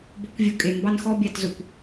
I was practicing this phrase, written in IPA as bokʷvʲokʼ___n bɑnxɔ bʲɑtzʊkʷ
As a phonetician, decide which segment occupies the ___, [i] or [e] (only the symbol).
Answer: e